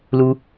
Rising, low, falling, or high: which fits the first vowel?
high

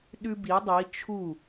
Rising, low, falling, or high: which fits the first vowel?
high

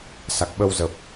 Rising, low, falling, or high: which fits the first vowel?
low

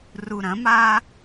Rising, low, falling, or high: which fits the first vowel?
low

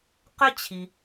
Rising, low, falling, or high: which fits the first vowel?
high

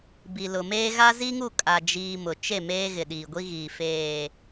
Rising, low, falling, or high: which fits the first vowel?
low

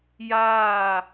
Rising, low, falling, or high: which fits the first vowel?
falling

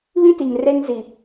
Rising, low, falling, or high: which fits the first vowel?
high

